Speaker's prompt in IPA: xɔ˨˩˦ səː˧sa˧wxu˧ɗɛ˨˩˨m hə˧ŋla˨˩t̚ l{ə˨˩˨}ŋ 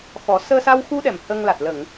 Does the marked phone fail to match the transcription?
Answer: no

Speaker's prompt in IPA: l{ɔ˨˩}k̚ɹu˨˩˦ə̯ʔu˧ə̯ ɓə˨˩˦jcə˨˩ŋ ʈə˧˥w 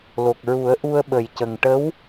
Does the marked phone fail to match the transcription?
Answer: yes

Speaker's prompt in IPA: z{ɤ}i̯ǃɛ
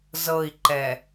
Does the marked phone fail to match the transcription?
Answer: no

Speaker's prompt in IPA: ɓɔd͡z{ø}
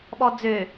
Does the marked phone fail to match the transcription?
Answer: no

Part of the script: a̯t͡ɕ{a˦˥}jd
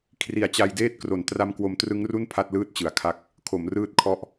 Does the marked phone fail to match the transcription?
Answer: yes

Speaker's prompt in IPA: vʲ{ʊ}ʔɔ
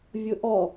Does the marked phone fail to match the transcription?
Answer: no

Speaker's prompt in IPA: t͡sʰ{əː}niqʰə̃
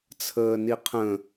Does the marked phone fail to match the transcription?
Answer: no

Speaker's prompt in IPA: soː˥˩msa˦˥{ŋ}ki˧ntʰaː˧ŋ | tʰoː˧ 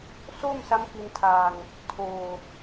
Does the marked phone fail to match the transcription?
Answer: yes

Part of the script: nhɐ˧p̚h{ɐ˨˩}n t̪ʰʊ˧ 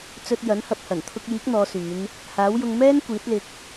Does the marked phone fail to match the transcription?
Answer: no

